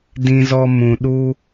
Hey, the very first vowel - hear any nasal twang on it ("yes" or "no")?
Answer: yes